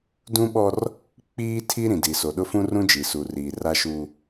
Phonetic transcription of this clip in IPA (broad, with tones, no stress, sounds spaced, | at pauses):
d ũ˦ ɓ ɔ˦ r | k͡p iː˦ tʰ i˦ ɾ ĩ˨ d i˨ s o˨ ɗ ʊ˦ f ũ˦ r ũ˦ d͡ʒ i˨ s u˨ r iː˨ r a˦ ʃ u˦